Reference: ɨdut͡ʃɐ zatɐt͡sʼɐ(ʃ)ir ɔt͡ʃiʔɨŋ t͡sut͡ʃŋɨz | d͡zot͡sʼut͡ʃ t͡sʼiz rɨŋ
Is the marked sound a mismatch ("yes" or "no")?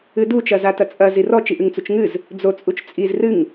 yes